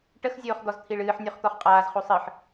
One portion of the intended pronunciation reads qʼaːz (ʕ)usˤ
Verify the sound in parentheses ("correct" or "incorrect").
incorrect